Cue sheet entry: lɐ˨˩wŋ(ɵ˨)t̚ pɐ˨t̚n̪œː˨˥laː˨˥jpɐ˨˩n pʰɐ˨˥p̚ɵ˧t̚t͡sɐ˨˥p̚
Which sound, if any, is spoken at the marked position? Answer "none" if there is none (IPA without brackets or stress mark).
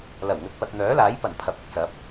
ɵ˨